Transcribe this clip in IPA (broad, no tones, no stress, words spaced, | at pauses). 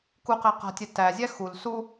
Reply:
kuqæ qa̤tʲɛ tæzʲæ xul su